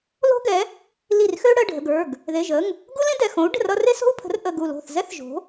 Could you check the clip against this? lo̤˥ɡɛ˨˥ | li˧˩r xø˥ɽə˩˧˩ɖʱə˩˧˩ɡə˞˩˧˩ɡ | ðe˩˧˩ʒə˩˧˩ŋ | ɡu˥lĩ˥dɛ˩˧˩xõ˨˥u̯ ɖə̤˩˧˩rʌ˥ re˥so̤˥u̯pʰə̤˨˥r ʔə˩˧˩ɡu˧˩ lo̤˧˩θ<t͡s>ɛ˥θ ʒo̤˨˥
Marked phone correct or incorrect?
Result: incorrect: z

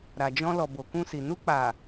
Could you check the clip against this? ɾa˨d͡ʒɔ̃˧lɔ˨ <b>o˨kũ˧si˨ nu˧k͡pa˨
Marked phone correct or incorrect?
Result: correct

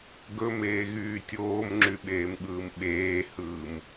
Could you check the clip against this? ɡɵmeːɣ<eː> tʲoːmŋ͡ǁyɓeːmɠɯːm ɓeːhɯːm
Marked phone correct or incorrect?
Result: incorrect: yː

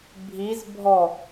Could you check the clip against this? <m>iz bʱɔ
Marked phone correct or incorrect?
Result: incorrect: bʱ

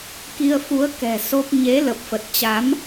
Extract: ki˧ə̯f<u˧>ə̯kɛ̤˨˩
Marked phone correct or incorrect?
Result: incorrect: u˨˦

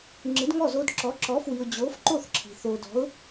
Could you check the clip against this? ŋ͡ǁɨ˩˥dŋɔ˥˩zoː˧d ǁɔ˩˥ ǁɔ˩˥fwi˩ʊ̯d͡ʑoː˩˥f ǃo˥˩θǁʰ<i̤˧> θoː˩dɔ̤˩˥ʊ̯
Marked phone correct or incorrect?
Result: incorrect: i̤˩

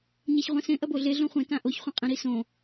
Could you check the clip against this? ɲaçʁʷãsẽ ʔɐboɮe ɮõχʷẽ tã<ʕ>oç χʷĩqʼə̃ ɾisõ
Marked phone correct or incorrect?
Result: incorrect: ʔ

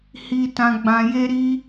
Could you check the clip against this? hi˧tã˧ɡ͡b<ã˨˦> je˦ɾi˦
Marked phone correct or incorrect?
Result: incorrect: ã˧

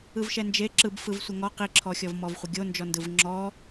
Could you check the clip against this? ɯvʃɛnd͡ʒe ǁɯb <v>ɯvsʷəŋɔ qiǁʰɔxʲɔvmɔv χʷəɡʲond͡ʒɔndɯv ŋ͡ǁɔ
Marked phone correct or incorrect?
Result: incorrect: f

